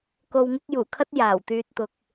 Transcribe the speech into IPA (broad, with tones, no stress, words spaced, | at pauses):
ko˧wŋɪ˥k̚ juː˨˩kʰɐ˥t̚ jaː˨˩wt̪yː˧t̚t̪ʊ˨k̚